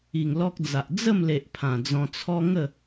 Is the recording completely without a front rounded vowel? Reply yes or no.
yes